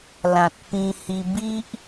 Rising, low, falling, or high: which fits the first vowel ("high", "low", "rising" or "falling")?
low